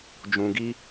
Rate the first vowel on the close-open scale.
close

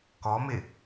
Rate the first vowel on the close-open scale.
mid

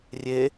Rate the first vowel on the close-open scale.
mid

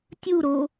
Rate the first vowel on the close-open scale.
close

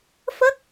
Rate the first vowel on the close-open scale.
mid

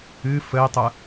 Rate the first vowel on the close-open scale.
close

